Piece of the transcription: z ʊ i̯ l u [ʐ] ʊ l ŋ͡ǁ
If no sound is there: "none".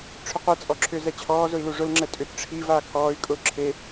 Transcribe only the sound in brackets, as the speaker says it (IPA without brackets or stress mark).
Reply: ʐ